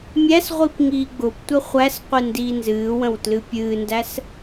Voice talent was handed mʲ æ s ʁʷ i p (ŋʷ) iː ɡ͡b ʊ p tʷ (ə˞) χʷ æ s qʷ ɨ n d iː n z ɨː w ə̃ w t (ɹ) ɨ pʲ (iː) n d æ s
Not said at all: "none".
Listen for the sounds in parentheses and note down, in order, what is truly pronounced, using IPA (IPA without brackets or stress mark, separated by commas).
ŋ, ə, l, ɨː